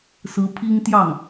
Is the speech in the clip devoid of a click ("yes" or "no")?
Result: yes